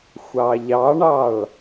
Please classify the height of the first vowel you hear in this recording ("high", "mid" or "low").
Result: low